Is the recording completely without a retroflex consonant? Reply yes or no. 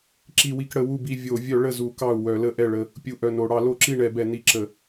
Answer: no